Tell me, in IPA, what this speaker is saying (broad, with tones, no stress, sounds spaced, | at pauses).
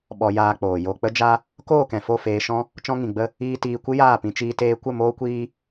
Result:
ɓ ɔ˧ j aː˧ k͡p oː˨ j o˨ k͡p ə˦ d͡ʒ a˦ | k oː˦˨ k ɛ̃˨ f o˦˨ f eː˧ ʃ ɔ̃˦ | t͡ʃ ɔ̃˧ ŋ ĩ˨ ɡ͡b ə˧ | iː˧ t iː˧ kʷ ɨ˦ j aː˦˨ p ĩ˧ t͡ʃ iː˧ t eː˧ kʷ ə˦˨ m oː˦ kʷ iː˦